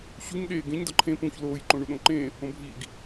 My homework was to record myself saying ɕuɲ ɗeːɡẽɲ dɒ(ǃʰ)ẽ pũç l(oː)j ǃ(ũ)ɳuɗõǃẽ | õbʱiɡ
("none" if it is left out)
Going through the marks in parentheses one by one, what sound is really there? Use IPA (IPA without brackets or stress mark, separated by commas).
ǃʰ, oː, õ